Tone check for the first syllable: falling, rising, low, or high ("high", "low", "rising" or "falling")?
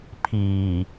low